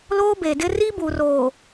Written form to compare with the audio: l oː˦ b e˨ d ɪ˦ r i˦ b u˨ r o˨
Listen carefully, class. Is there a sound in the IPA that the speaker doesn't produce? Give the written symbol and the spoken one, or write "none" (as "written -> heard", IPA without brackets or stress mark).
o˨ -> oː˨